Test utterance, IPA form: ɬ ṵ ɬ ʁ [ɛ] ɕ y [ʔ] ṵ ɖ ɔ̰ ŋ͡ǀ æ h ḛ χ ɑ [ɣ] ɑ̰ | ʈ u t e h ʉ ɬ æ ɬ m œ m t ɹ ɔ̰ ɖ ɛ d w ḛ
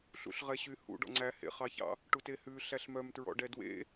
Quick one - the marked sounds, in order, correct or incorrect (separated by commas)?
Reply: correct, incorrect, incorrect